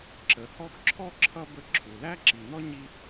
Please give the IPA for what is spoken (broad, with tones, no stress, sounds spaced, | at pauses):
ǁ ə˩ h ɔ˦ x ǁʰ ɔ˥ ǁʰ ʌ˥ b ə˦ ǁʰ u˩ l æ˥ ǁ i˨ n ɔ˥ ɲ i˥